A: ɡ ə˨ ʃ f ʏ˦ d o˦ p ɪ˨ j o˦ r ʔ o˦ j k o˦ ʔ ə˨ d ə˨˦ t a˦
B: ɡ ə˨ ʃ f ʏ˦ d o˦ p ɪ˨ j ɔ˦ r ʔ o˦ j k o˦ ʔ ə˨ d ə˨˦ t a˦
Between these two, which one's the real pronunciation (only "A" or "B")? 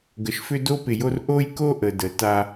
A